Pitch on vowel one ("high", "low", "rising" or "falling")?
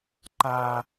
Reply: low